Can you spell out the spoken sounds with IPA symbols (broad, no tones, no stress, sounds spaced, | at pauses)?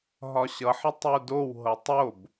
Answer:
ɦ ɒ ɕ ʌ ħ ʌ tˤ u d o w ɦ ɤ tˤ o b